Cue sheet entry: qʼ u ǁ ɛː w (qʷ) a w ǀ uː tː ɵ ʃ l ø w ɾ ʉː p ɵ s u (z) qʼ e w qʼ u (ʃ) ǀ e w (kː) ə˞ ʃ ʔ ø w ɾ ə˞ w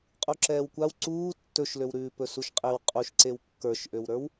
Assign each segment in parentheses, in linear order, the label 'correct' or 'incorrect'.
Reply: incorrect, incorrect, correct, correct

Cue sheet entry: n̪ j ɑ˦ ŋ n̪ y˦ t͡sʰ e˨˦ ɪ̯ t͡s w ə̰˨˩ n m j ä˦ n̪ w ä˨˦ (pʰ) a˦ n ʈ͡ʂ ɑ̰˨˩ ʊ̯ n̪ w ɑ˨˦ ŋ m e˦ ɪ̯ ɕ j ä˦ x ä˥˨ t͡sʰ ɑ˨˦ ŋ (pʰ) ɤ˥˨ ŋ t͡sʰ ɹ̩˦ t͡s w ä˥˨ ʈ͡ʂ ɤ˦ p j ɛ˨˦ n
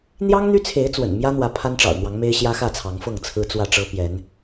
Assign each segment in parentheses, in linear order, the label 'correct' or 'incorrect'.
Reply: correct, incorrect

